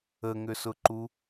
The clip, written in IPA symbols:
ə ŋ ʏ s ʊ ǃ u

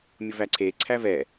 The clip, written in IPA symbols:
mʲ ʊ v æ ǀʰ e ǀʰ æ v ɛ

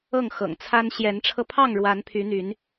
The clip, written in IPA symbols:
ɤ˥˨ ŋ x ɤ̰˨˩ ŋ t͡sʰ a˦ n ɕ j ɛ˨˦ n ʈ͡ʂʰ ɤ˧ pʰ ɑ˥˨ ŋ ɻ w a˨˦ n pʰ y˨˦ n̪ y˨˦ n

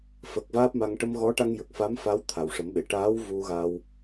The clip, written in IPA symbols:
f ə˨˩ k̚ v aː˦˥ p̚ m a˧ ŋ ʈ ə˧ m ɣ ɔ˧˥ ʈ a˧ ŋ j ə˨˩ k̚ f a˧˥ m f a˧˥ w t̪ʰ a˨˩ w ʂ ə˨˩˦ m ɓ e˨˩˨ ʈ aː˧˥ w v u˧ ɣ a˧ w

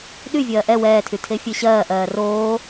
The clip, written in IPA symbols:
ɗ y vʲ ɜː ʔ ɛ w ɛː tʰ y tʰ e fʲ e ɕ ɜː ʔ ɜː r oː

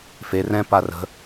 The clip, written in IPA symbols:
f e r ɛ̃ p a r ə̤

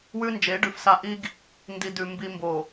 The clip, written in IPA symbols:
w ʉ˦ n d͡ʒ e˨˦ ɖ ʉ˨ f s a˦ ʔ i˦ ɡ | n d i˨ d ʉ˨ m b i˨ m b o˨

